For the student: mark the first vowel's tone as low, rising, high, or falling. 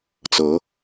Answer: rising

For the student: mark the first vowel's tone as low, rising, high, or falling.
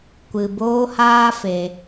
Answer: low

